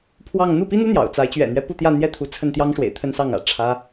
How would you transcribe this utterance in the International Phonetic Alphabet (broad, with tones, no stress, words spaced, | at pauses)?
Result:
pʰwɑ˥˧ŋ n̪u˥˩pi˥n̪u˥ n̪jɑ̰˨˩ʊ̯t͡sa˧˥ɪ̯ t͡ɕɥɛ̰˨˩n̪ɥɛ˦ pu˥˧t̪jä˥˧n̪jɛ˥˩t̪ʰu˧˥ t͡sʰə˥˩nt̪jɑ˥ŋʂwḛ˨˩ɪ̯ t̪ʰə˥nsɑ˥˩ŋä̰˨˩ ʈ͡ʂʰä˥